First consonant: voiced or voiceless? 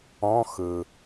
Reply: voiceless